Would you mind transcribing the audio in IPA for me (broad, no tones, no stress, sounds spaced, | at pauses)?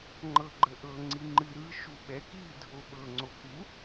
ŋ͡ǃ ɤ ɡ͡ǃ ə ʔ ɤ ŋ͡ǀ i ŋ͡ǃ ɨ ɾ ɯ ʃ u ɓ ɛ k i dʱ o ɓ ɤ ŋ͡ǀ o k u